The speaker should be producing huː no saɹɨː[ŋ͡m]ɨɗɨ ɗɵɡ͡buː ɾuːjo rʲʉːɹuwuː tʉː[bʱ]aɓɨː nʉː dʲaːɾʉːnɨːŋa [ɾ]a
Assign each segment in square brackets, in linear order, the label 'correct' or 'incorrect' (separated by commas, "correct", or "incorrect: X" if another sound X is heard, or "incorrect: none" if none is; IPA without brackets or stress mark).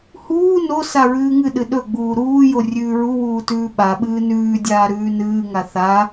incorrect: ŋ, incorrect: ɓ, incorrect: θ